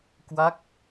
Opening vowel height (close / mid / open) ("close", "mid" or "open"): open